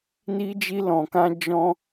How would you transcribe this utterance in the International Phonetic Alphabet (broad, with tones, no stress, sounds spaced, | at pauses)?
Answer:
n i˦ d͡ʒ i˦ l ɔ̃˧ k ã˦ d͡ʒ ɔ̃˦